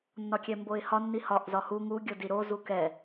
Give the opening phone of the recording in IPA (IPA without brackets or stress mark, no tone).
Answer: nː